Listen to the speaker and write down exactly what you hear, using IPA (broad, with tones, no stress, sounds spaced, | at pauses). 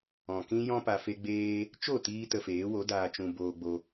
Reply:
ɔ̃˨ k ĩ˦ j ɔ̃˦ p a˧ f e˦ ɡ͡b eː˦ | t͡ʃ o˦˨ t iː˧ t ə˧ f eː˨˦ w o˨˦ d aː˧ t͡ʃ ũ˧ b oː˧ ɡ͡b o˧